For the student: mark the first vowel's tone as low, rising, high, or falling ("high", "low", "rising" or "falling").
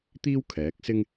high